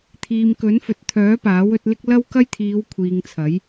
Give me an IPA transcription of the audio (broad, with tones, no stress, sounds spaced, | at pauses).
t̪ʰ iː˨ m k ɵ˨˥ n f ɵ˨ t̚ t̪ʰ œː˨˥ p aː˨˥ w ɵ˨˥ t̚ l ɪ˥ k̚ l ɐ˥ w k ɐ˥ j t̪ʰ iː˨˧ w kʷʰ iː˨ ŋ t͡sʰ ɐ˨˥ j